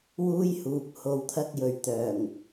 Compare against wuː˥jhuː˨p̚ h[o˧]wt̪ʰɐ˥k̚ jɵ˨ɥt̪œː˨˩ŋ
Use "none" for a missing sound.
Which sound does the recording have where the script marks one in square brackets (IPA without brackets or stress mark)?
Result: o˧